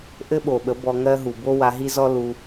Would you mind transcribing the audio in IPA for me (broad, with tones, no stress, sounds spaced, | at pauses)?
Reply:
ʔ ɘ˦ ɓ o˨ ɓ ə˨˦ b ɔ˧ ŋ ɜ˦ ɦ u˨ b o˦ w a˧ ɦ i˦ z ɔ˦ l u˧